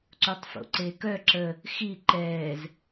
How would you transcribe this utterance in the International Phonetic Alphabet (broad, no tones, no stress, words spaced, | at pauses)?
ǀutˤfo̰ǀeːkœ ǁə | xi ǃɛːz